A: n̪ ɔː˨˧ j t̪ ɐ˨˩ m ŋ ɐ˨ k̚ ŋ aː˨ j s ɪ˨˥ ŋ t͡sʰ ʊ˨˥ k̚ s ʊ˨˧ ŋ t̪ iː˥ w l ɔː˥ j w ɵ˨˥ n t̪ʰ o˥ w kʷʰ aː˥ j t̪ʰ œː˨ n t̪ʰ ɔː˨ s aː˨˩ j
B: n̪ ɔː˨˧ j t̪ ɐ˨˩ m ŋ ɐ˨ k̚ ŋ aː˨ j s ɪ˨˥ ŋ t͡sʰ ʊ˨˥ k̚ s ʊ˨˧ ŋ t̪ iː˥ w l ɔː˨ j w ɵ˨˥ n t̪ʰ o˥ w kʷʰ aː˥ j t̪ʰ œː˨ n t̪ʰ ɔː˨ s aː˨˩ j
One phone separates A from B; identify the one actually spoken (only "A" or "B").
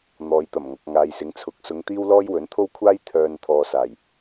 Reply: A